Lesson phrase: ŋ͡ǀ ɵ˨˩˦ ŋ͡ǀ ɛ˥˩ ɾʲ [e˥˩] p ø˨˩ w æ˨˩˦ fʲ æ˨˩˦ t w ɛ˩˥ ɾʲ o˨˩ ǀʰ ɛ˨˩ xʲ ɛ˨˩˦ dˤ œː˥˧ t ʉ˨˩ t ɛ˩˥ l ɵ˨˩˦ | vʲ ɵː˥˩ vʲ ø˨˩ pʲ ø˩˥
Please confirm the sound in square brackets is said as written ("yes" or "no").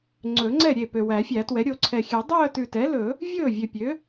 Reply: yes